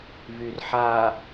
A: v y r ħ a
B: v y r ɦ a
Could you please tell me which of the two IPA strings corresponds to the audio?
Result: A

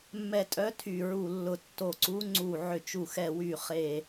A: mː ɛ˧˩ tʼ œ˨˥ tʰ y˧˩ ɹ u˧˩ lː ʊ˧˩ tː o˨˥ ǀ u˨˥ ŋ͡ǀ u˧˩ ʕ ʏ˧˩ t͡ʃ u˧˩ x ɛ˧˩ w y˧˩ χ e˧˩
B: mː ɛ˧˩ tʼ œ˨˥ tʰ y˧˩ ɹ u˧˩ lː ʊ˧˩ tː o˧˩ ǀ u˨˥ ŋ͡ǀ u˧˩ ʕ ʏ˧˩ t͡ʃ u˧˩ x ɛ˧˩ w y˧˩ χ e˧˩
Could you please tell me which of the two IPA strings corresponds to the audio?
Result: B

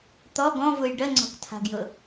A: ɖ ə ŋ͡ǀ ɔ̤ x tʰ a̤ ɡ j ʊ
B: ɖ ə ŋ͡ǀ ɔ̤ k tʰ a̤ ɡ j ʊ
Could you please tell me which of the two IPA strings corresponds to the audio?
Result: B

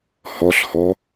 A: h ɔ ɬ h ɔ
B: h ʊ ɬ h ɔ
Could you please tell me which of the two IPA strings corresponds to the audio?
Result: A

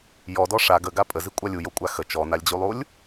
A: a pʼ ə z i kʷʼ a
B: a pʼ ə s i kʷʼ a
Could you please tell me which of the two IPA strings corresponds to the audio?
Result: A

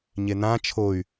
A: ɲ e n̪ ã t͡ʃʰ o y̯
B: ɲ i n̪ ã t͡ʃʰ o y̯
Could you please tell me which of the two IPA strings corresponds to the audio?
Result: A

